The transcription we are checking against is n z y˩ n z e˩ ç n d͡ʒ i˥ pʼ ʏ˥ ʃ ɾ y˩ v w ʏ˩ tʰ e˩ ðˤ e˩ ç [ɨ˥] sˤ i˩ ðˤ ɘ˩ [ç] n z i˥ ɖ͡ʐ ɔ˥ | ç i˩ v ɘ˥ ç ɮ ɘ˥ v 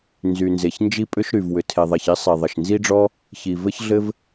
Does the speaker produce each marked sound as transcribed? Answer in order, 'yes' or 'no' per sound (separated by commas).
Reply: no, no